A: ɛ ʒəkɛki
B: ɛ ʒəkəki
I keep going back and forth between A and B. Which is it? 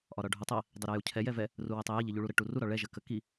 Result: B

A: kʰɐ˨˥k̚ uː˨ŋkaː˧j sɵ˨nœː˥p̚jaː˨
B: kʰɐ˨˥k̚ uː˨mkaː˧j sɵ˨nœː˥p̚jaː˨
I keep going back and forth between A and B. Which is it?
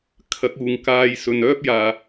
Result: A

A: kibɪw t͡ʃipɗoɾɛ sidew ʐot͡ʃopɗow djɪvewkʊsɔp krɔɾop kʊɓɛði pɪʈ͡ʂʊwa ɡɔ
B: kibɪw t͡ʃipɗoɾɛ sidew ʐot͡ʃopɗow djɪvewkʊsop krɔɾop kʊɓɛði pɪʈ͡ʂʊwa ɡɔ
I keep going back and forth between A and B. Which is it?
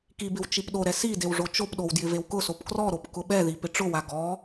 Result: B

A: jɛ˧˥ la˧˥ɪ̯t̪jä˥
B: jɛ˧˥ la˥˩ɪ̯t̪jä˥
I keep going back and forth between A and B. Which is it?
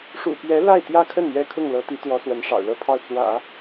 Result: B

